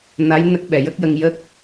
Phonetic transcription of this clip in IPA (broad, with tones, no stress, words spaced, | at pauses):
na˧˥j nə˦˥k̚ɓɛ˨˩ jə˦˥k̚jə˧ŋ jə˦˥k̚